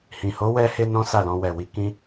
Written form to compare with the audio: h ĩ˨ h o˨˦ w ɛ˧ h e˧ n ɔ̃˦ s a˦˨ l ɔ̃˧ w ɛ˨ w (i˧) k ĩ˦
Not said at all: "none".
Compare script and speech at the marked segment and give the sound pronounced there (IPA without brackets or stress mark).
i˧